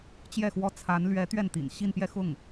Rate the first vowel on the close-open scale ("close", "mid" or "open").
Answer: mid